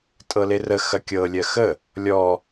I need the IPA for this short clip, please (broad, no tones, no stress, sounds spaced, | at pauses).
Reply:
tʼ ɤ l e r ə x ɐ kʲ ɤ lʲ ɜ x ə | lʲ ɔ